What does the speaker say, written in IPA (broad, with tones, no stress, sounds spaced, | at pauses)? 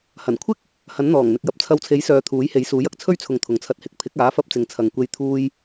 h ɐ˨˩ n kʷʰ ɪ˥ k̚ | h ɐ˨˥ n n̪ ɔː˨˩ ŋ n̪ ɪ˨ k̚ j ɐ˨ p̚ t͡sʰ ɐ˧ w t͡sʰ e˨˥ j s œː˨˧ t̪ʰ uː˨˥ j h e˨˥ j s uː˨˥ j ɐ˨ k̚ t͡sʰ ɵ˥ ɥ t͡sʰ ʊ˨ ŋ t̪ʰ ʊ˨ ŋ t͡sʰ ɐ˧ t̚ h ɪ˧ k̚ pʰ ɪ˨˥ k̚ aː˨˥ f ɐ˥ p̚ t͡s ɪ˧ ŋ t͡sʰ ɐ˨ ŋ kʷ e˧ j t̪ʰ uː˧ j